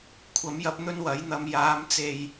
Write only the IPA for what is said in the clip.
kʷʰ ɐ˨˥ m j ɐ˧ p̚ n̪ ɵ˥ n w ɐ˨˥ j n̪ ɐ˧ m j aː˨˧ m t͡s e˨ j

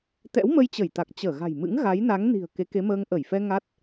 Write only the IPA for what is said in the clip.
t̪ ɛ̰˧˥ w m ə˧ j t͡ɕ ə˧˩ j t̪ a˨˩ k̚ t͡ɕ əː˧˩ ɣ a̤˨˩ j m ɨ̰˧˥ ŋ ɣ a˨˦ j n a˨˦ ŋ n i̤˨˩ ə̯ k e˨˦ k e˨˦ m əː˧ ŋ ʔ ə˧˩ j f ɛ˧ ŋ a˦˥ t̚

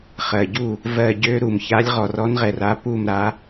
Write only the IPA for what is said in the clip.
χ ɜ˩ ɟ u˧˩ | v ɜ˧˩ ɟ ø˨˦ ɾ u˩ m ç a˨˦ lʲ ʁ ɔ˩ r ɔ˨˦ n ʁ ɛ˩ r a˨˦ p u˧˩ m ɾ a˨˦

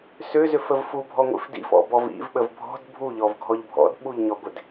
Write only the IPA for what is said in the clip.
s ʏ z ʏ f ə v f u bʱ ɔ ŋʷ ḭ f d ḭ f ɔ̰ b ɔ v ḭ v ɓ ə v bʱ ɔ̤ d bʱ u ʎ ɔ v ɡʱ ɔ ʎ bʱ ɔ̰ d ɓ u ʎ ɲ ɔ ɡʷ ɪ d

